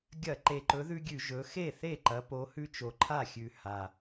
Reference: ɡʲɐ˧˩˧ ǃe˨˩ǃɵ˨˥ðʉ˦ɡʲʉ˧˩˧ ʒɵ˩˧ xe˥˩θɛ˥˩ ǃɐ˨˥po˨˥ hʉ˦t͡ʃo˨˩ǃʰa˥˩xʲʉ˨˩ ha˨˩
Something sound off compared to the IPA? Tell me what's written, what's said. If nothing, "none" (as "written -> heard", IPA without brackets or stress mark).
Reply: ɛ˥˩ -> e˥˩